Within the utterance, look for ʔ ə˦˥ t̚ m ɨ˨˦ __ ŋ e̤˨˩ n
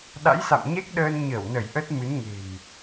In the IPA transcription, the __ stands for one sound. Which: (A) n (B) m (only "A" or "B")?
A